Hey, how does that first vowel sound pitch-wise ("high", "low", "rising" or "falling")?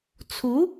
rising